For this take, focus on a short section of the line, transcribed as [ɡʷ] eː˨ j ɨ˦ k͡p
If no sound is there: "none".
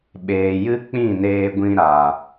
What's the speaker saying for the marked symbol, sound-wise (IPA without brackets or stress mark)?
ɓ